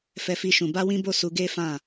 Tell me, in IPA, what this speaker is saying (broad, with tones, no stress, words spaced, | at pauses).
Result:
fɛ˦fi˦ʃũ˧ ba˦wĩ˦bo˦˨su˧ ɡe˦ fã˦˨